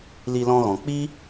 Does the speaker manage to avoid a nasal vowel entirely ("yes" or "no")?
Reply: no